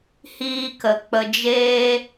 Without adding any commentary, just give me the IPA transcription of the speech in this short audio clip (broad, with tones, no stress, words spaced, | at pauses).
hiː˧kə˨ k͡pə˧d͡ʒeː˦